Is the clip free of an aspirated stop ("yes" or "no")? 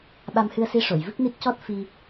yes